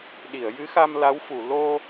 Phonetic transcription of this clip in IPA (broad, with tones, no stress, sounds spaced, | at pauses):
ɗ i˨˩˨ ə̯ j ɨ˧˥ x a˧ m l a˧˥ w f u˨˩˨ l o˧